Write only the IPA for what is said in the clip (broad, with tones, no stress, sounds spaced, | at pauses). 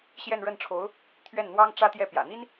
ɕ j ɛ˥˧ n ɻ ə˥˩ n ʈ͡ʂʰ o˧˥ ʊ̯ | t̪ʰ ɥ ɛ˥˩ n n̪ w ɑ˥ ŋ ʈ͡ʂ ä˥ t̪ j ɛ˥˩ p j ä̰˨˩ n̪ i˥ n